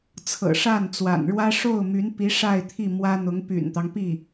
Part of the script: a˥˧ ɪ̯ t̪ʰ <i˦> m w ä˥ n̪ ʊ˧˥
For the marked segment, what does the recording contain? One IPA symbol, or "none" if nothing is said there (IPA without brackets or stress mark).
i˥˩